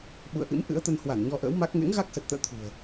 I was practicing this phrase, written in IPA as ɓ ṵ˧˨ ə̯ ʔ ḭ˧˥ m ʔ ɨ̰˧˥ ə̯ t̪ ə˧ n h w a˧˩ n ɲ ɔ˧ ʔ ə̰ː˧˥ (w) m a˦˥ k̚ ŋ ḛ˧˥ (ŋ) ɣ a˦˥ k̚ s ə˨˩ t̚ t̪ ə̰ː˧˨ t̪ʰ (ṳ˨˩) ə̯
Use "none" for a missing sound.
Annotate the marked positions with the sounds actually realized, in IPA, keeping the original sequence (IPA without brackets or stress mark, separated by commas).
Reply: w, ŋ, ṳ˨˩